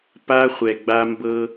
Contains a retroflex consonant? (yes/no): no